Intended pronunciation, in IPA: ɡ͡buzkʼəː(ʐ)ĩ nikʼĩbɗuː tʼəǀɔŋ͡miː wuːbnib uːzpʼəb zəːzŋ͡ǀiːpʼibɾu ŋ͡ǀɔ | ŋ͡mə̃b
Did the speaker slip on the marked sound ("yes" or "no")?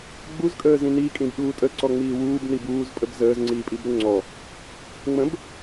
yes